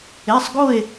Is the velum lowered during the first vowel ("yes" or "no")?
no